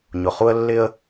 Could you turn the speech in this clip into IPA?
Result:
ɲ ʊ˨ χ u˦ ə̯ lː ɪ˦ ə̯

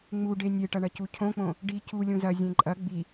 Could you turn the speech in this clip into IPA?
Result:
ŋ͡m u ɖ e nʲ e ʈ ɐ ɳ ɐ c u cʰ õ k͡p õ | ɖ i c u lʲ ũ z ɐ zʲ ẽ ǃʼ ɐ ɡ͡b i

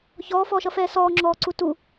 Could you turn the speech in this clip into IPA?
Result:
ç ɔː f ɔː ʃ ʌ f ɛː s ɔː ŋ͡ǁ ɔː ǀ u t u

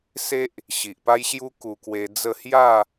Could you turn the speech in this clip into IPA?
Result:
s e˦ ʔ | ɕ i˨ ʔ p a˦ j ɕ j u˦ k u˧ k w e˧ d͡z ə˥˧ h j a˥˧

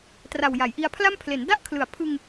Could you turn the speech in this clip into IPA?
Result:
t r a˨˩ w j a˩˦ j ʔ i˧ a̯ pʰ l a˥˩ m pʰ l e˩˦ n d a˥˩ ʔ kʰ l ɯ˨˩ a̯ pʰ ɯ˧ ŋ

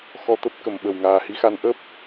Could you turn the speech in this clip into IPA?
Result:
x ɔ˧ t̪ ə˦˥ p̚ k ə˨˩ m ɓ ə˧˩ w ŋ aː˨˩ h i˨˦ x a˨˦ n ʔ ə˦˥ p̚

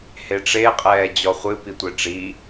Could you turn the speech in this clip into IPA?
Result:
h e ʈ͡ʂ e qʼ ɛː d͡ʑ ɔ χʷ ɨ p i tʷ e ʈ͡ʂ i

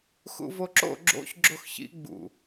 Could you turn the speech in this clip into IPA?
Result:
x ṵ v o ǁ o̰ ɡ͡ǁ o̰ ç ɡ͡ǁ o x ç ḭ ɡ͡b ṵ

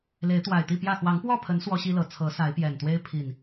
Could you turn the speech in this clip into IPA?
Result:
l e˨˦ ɪ̯ t̪ w a˨˩ ɪ̯ t̪ i˥˨ p j ä˥˨ x w ɑ˨˦ ŋ p w ɔ˥˨ pʰ ə˨˦ n s w ɔ˦ ɕ i˦ l ɤ˨˩ t͡sʰ ɤ˨˦ s a˨˦ ɪ̯ p j ɛ˨˩ n t̪ w e˦ ɪ̯ pʰ i˨˩ n

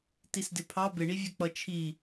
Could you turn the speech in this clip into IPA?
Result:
t i s d ɪ pʰ ɑ b ɪ ɳ i vʲ ɛ k͡p ʌ t͡ʃʰ i

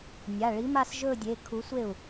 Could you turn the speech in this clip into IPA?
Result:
nʲ a˩˧˩ ɭ i˨˥ m a˥˧ s ʒ ɵ˥˧ dʲ e˩˧˩ kʰ u˨˥ sʷ e˥˩ u̯

